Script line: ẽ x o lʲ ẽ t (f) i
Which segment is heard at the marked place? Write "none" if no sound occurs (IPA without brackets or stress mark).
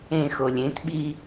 ɓ